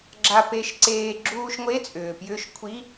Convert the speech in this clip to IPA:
ɡ͡ǁ a˧ p e˧ ʃ ǀ eː˧ ɡ͡ǁ uː˧ ʃ ŋʷ e˧˥˧ t͡sʼ ʏː˩ p j ʏː˧ ʃ kʷʰ i˧˥˧

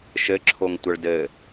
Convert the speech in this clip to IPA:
ʃ ɘ ǁʰ o ŋ tʷ ə ɭ d ɘ

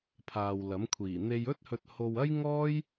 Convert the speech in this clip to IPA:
pʰ aː˨ w l ɐ˨˥ m kʷʰ iː˨˩ n̪ e˧ j ɵ˥ t̚ h ɵ˧ t̚ h o˧ w ɐ˥ j ŋ ɔː˥ j

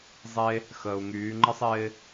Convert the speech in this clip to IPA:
zˤ e˥ | x əː˩ u̯ ŋ yː˩˧ ŋ͡ǃ ə˥ sˤ ɪː˥

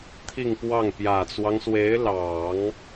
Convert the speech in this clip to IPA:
t̪ʰ i˥˧ ŋ p w ɑ˥˩ ŋ p j ä˨˩ t͡s w ɑ˦ ŋ s w e˧˥ ɪ̯ l ɑ˨˩˦ ŋ

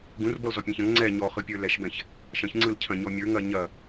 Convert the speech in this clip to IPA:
ɡ ũ r b ɔ l z ɔ pʲ ɛ̃ ç ɐ̃ ŋ ŋ͡ǀ ɛ ɲ ɔ χ ɯ pʲ ə˞ l ɛ ʃ b ɛ̃ ç | ʃ ɐ̃ ç ŋ͡ǀ ɯ l cʰ ɐ̃ ɲ ɔ mʲ ə˞ ŋ ɐ ɲ ɐ

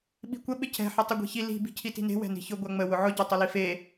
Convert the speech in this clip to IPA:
ɓ i̤ kʷ ə ɓ ɪ cʰ ɛ̤ ħ ə tˤ ɪ ɡʷ i̤ ç i l i̤ b i̤ cʰ i t i̤ n e̤ w ɛ̤ n i̤ ç ʊ ɡʷ a ŋ͡m ə w ʊ ʕ ʊ ɟ a tˤ ʊ l i f e

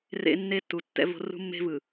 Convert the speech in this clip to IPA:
r ḛ˦ nː e˦ tː u˨ tː ɛ̰˦ v o̤˦ r ṳ˦ mː e̤˦ v ɯ˨

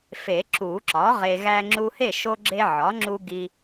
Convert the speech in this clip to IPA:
f e˨˩˦ ǁ u˨˩˦ ǁ ɒ˩˥ ʁ e˨ ɣ æ˦ ŋ͡ǁ u˦ h e˥˨ ʃ o˦ ɡ͡ǁ e˦ ʕ ɒ˩˥ ŋ͡ǁ u˦ ɡ i˦

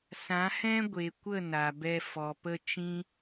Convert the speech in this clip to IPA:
s ã˨˦ h ɛ̃˦ ɡʷ e˨ kʷ ə˦˨ n a˨ b ɛ˧ f ɔ˨ p ə˧ t͡ʃ ĩ˦

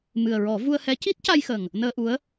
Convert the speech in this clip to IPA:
m ɨ˨˩ ə̯ ɹ ɔ˨˩˦ v u˧ ə̯ h ɛ˧˥ c i˦˥ t̚ c a˧ j x ə˨˩ ŋ | n əː˧ ʔ u˧˥ ə̯

